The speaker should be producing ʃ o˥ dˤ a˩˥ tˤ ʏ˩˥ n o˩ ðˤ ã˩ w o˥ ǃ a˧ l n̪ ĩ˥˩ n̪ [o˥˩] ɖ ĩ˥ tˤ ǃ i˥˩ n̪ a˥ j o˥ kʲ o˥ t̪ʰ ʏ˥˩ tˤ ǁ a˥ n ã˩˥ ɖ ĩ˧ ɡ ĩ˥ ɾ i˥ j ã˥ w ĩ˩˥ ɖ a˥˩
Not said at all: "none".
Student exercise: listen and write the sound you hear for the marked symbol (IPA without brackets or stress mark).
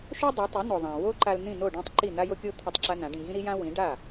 o˥˩